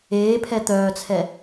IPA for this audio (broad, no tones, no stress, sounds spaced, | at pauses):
eː pʰ ɛ t̪ œː t͡sʰ ɛ